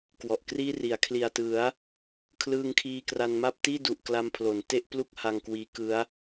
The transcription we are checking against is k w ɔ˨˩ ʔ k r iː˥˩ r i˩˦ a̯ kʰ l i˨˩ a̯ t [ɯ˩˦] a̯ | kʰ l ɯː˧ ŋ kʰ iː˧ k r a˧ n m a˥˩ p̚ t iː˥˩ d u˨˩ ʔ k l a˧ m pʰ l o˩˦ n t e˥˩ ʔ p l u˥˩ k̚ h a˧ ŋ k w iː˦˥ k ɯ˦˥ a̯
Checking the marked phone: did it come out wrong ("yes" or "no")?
no